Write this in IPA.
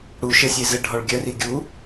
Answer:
ɽ u ʃ ɘ sʲ e z ɘ ɖʱ ɔ ɭ ɡʲ œ r i ɡʲ u

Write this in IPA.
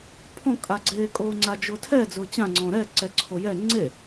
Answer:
pʰ ɔ̃ kʼ a ɡ͡ǀ eː kʼ oː ŋ͡ǀ a d͡ʒ ʊː tʰ ɛ d͡z ʊː t͡ɕ ã ŋ͡ǀ ɔ̃ ɾ ɛ ǀ ɛ ǀʰ o j ɛ ŋ͡ǀ e

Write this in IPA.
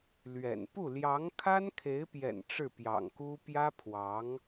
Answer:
l ɥ ɛ̰˨˩ n p u˥˩ l j ɑ˧˥ ŋ kʰ a˥ n kʰ e˧˥ ɪ̯ p j ɛ̰˨˩ n ʈ͡ʂ ɻ̩˥˩ p j ɑ̰˨˩ ŋ k u˥ p j ä˥ pʰ w ɑ˧˥ ŋ

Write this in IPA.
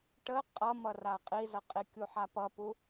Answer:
ʈ ə qʼ ʌ m ʌ r a qʼ i z ʌ qʼ i kʲ u ħ a p ʌ p u

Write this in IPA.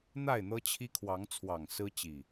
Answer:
n̪ a˥˨ ɪ̯ n̪ ɤ˦ t͡ɕʰ i˦ kʰ w ɑ˨˦ ŋ t͡sʰ w ɑ˨˩ ŋ s ɹ̩˦ t͡ɕ i˨˩

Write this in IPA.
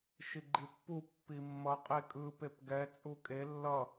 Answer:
ʃ i ɡ͡ǃ i pː u pː i mː ʌ qʼ e kʼ ɯ p e p ɡ ɛ t͡sʼ u kʼ e lː ʌ

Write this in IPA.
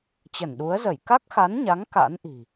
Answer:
t͡ɕ ə˧˩ n ɗ u˨˦ ə̯ z ə˧˩ j k a˦˥ k̚ x a˨˦ n ɲ a˨˦ ŋ k a̰˧˥ n ʔ i̤˨˩

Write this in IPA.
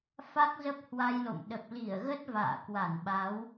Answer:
f a˦˥ k̚ z ə˦˥ p̚ h w a˧ j l o̰˧˨ m ɗ ə˨˩ p̚ l i˧˩ ə̯ ɣ ə˦˥ t̚ v a̰ː˧˨ k w a˧˩ n ɓ a˨˦ w

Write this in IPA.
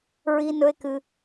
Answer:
ɹ i˦ n ɵ˦ e̯ k ɨ˧

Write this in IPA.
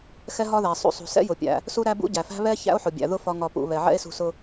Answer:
x ɛ˥ ɦ ɒ˥ ð æ˩ sˤ ṵ˧ sˤ ṳ˩ s ɛ̰˥ j ʊ˩ pʲ æ̰˩ | s u˥ ɾ æ˥ b ṵ˥ ɟ æ˩ f æ̤˥ β ɛ˥ ç æ̰˥ o̯ ħ ʊ˩ bʲ æ̰˩ ð ʊ˥ f ɒ˧ ŋ ɒ˩ p ṵ˩ β ɛ˩ ʕ ɛ̰˥ e̯ s ṳ˧ s ʊ˧

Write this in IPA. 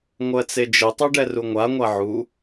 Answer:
ŋʷ ɜ t͡s e d͡ʒ ɘ tˤ o ɖ ɛ r u ŋʷ a ŋʷ a ʕ u

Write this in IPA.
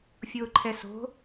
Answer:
fʲ ʊː ǃʰ ɛ s o̤

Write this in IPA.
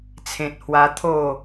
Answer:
t͡sʰ ẽ˨ t̚ h w a˧ t̪ʰ o˥˧

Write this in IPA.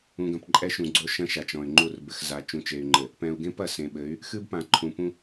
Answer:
ũ˨ ɡ ɐ̃˨ p ǃʼ ɛ˦ ʃ ũ˨ ɡ͡ǀ o˦ ʃ ɐ̃˦ ʃ a˨ t͡ʃ ɔ̃˨ y̯ ŋ͡ǃ u˦˨ r b ɘ˨ x z a˨ t͡ʃ ũ˨ t͡ʃ e˨ y̯ ŋ͡ǃ ɘ˨ | p ɛ̃˨ u̯ ɡ ẽ˦ p ɐ˨ s ẽ˨ ɓ ɘ˨˦ y̯ | x ɨ˦ b p ã˨ ǃʰ ũ˨ p ũ˦

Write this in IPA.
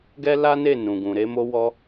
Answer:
ɡ ɛ˦ l a˦ n e˦˨ n ũ˨ ɡ ũ˨ ɾ e˨˦ m o˦ w ɔ˦

